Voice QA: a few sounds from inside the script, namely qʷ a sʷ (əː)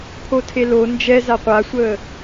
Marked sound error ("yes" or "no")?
no